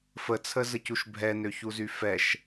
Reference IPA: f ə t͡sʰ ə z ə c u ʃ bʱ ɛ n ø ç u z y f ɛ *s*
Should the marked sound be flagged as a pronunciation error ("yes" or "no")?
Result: yes